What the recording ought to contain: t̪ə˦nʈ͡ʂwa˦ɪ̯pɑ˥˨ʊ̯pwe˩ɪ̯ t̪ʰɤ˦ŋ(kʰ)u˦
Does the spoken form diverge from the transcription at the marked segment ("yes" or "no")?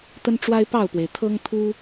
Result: yes